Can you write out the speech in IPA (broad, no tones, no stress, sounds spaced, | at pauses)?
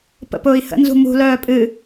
p ə̰ p ʊː i̯ h ə̰ n z ṳ m ṳ l œː pʼ ɨ